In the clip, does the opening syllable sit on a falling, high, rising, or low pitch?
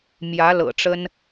rising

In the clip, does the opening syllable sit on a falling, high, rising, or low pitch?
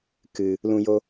low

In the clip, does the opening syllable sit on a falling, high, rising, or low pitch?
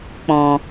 low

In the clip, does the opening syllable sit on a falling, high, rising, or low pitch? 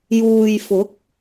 low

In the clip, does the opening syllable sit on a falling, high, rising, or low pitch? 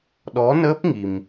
rising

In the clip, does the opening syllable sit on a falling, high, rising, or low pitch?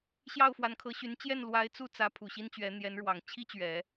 falling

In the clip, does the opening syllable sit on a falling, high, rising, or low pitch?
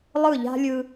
falling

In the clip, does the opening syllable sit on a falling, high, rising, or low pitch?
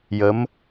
rising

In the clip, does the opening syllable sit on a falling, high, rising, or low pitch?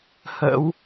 rising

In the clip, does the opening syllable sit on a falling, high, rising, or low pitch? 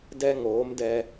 high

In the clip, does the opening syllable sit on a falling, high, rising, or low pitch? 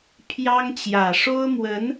high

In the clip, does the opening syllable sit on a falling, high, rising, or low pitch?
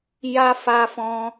high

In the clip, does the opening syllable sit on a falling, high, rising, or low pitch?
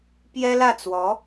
high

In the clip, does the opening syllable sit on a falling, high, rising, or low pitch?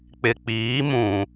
low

